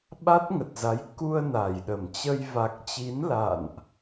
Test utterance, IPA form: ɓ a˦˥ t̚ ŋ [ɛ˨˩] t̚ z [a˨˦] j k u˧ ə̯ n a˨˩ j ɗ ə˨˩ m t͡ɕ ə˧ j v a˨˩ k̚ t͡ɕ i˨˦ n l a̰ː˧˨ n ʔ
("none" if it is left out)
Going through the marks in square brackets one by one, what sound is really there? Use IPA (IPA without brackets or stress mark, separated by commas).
ə˨˩, a˨˦